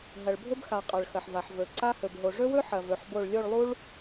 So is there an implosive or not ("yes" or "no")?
no